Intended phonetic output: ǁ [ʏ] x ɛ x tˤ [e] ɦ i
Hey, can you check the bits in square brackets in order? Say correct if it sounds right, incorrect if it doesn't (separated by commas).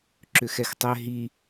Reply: correct, incorrect